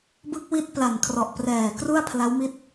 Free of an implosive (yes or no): yes